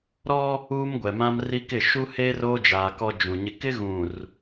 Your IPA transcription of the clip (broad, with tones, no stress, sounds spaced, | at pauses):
ɾ ɔ˦ | uː˦ m ɡʷ ɛ˨ m ã˦ m r i˦ k ɪ˦˨ ʃ u˦ h eː˦ r oː˦ d͡ʒ aː˨ k ɔ˦ d͡ʒ ũ˨ ɲ ɪ˦ k ɪ˦ ɣ ũ˨ r